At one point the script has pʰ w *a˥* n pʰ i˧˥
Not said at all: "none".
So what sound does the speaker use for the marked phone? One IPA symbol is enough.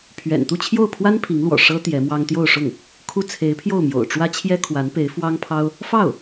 a˥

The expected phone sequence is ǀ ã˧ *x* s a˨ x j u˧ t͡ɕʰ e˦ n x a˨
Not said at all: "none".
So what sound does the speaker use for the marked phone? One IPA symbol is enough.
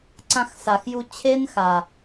x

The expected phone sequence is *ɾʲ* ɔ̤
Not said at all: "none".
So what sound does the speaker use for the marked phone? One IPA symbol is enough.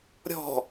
ɾʲ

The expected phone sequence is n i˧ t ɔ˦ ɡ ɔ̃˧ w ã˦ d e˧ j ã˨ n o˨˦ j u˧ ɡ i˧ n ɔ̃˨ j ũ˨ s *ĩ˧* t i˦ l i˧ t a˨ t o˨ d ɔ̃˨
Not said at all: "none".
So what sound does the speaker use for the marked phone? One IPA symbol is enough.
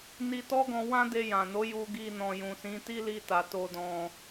ĩ˨˦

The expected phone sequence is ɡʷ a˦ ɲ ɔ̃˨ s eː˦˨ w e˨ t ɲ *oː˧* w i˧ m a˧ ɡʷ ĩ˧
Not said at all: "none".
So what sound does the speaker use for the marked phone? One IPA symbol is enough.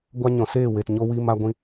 o˧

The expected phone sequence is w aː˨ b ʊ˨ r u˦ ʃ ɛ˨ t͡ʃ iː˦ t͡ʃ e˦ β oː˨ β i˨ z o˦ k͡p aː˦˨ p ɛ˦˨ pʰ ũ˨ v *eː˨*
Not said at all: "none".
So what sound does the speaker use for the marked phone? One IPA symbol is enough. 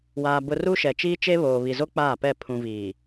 iː˨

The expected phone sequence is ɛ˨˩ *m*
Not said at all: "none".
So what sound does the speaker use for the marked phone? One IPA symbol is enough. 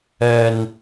n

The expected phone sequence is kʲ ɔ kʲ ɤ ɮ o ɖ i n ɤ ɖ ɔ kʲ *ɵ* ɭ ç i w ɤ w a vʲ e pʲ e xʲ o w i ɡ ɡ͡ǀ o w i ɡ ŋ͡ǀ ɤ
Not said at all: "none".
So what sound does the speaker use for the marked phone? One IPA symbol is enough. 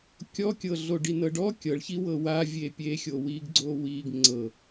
ɤ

